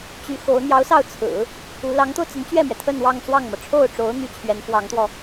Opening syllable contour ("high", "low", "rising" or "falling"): rising